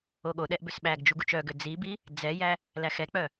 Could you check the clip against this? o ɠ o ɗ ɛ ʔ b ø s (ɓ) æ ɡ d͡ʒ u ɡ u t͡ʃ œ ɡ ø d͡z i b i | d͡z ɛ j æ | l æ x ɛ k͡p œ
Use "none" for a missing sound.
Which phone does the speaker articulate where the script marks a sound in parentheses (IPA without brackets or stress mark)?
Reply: ɓ